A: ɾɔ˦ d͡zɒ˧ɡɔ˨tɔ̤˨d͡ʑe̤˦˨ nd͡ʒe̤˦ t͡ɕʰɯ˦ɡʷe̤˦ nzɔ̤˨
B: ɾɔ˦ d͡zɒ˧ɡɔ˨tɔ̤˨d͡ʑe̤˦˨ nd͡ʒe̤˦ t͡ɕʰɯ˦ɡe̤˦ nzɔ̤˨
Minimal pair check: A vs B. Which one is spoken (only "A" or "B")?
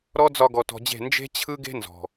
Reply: B